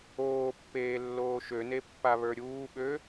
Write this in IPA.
oː pː eː lː oː ʃ ø n e pː a β ə˞ ɾʲ uː ɓ ø

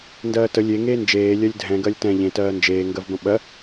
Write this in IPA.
n d ɜː t ə lʲ e ŋ eː n d͡ʒ eː lʲ ɜ lʲ dʱ ɛ̃ ɡ ɜ lʲ t ɛ̃ ʎ ẽ t ɜː n d͡ʒ eː ŋ ɡ ɜ v b ə̃ ɓ ɜ

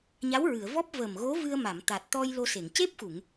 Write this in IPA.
ɲ a˧˥ w ɹ ɨ˨˩˨ ə̯ v ɔ˦˥ p̚ v ə˨˩ m ɣ o˧˥ v ɨ˧ ə̯ m a˨˩˨ m t̪ a˨˩ t̚ t̪ ɔ˧ j l o˧ s e˨˩˨ ŋ c e˦˥ p̚ x u˨˩˨ ŋ

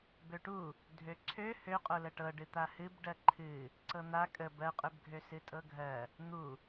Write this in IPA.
b ø ʈ u | dʱ ø ǀʰ ø h ø qʼ o l ə ʈ ɤ ɖ ɨ t̪ a h ɨ b ɖ ɜ ǃʰ ɨ | ǀ ɤ n̪ a kʼ ə b ɜ qʼ ø b ɡʱ ø s ɨ tʼ ɤ ɡʱ ɜ | n̪ u

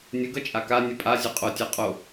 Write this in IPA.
nʲ ə ɡ ʌ t͡ʃʼ a k a nʲ ə pʼ a zʲ ʌ qʼ o tʲ a qʼ o

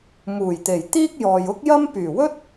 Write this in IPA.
m uː˨˩ j t̪ e˨˩ j t̪ iː˥ k̚ j ɔː˨ j ʊ˥ k̚ j ɐ˥ m p yː˨˩ w ɵ˥ t̚

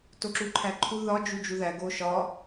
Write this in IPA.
t o ǁ u ǃʰ æ ǃʰ u ð ɒ d͡ʒ u d͡ʒ u ð æ ɡ o ʃ ɒ

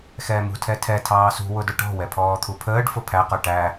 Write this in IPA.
x ɛː m ṳ tʰ ɛ tʰ ɛ tʰ ɑː s ṳ w ʊ d ʊ ʈ ɔ̤ w ɛ pʰ ɔː t̪ʰ u pʰ əː ɖ f ʊ pʰ æ q ə˞ ʈ æ

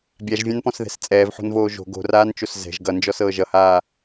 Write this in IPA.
bʲ a ʒ vʲ ã n p ɔ̃ s ð ɛ̤ s t͡sʼ ɛː v ħ o̤ n v oː ʒ o̤ ɡ o̤ r aː n t͡ʃ o s z ɛ̤ ʒ ɡ ʌ n d͡ʒ ɔ s ɤː ʒ ʌ h aː

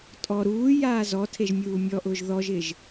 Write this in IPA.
tʼ ɔ ɾ uː j aː z ɔ tʰ e ʒ mʲ uː mʲ ɔ ʔ ʊː ʒ ð ɔ ʒ ɪ ʒ

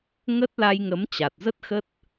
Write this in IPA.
ŋ ə˦˥ t̚ l a˧ j ŋ ə˨˦ m t͡ɕ a˨˩ t̚ z ə˦˥ t̚ x ə˦˥ t̚

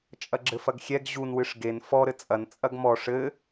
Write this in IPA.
t͡ʃʼ ɐ ɡ͡ǁ ɘ f ɐ ɡ xʲ ɛ ɡ ʑ u n w ɨ ʂ ɡ e n f ɔ ɾ ɘ t͡sʼ ɐ n t͡sʼ ɐ ɡ m ɔ ʂ ɘ

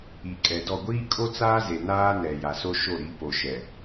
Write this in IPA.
i˨ kʼ ɛ˨ d ɔ˦˨ ɡʷ iː˦ kʼ o˦ t͡s aː˦ z e˨ n aː˦ n ɛ˨ j a˨ s o˦ ʃ o˦˨ ɾ i˨˦ p o˨ ʃ ɛ˨

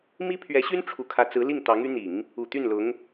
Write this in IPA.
m i˥ pʰ ɥ ɛ˧˥ ɕ y˥ n ʈ͡ʂʰ u˧˥ kʰ ä˧˥ t͡s ɹ̩˧˥ l i˥˩ ŋ t̪ ɑ˧˥ ŋ y˧˥ n̪ i˨˩˦ ŋ | u˨˩ t̪ y˥˩ n l ʊ˧˥ ŋ

